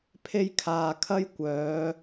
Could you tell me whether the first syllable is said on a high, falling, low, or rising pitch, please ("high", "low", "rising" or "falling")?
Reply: high